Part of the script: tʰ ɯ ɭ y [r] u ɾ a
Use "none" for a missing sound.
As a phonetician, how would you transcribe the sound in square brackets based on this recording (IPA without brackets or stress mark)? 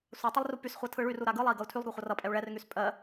r